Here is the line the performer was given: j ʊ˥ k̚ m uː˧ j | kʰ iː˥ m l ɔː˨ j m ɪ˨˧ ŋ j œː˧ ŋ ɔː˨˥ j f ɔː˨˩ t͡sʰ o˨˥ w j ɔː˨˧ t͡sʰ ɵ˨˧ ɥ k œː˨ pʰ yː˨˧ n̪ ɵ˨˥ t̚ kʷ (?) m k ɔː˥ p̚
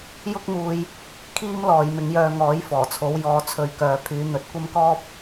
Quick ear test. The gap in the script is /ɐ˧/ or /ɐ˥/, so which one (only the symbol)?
ɐ˥